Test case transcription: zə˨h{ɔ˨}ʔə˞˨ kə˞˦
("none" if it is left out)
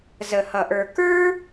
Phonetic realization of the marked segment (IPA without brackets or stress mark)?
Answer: ʌ˨